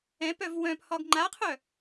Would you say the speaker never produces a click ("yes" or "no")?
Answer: no